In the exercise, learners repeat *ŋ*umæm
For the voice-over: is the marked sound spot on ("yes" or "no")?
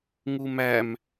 yes